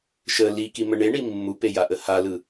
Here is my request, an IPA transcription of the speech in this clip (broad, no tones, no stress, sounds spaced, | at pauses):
ʃ ə l i k i m ə ɳ e ɳ i mː u p e j a ʔ ə h a l ɯ